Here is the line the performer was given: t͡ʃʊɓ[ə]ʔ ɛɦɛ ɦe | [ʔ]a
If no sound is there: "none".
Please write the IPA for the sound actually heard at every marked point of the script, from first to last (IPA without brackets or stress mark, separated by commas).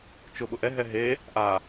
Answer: ʊ, ʔ